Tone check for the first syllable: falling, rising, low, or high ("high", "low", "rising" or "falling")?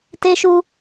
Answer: high